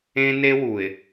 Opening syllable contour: high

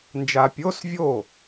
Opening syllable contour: low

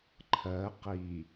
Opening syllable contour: rising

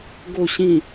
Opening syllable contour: low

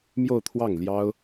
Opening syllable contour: falling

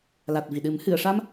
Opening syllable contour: low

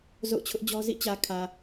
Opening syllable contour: falling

